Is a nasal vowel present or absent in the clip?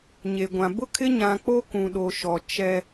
present